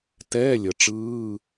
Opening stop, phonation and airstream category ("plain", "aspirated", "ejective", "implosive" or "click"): plain